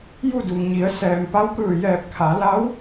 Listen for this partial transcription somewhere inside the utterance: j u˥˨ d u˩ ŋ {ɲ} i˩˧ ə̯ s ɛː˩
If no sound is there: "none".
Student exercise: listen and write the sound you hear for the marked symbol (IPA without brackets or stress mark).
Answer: ɲ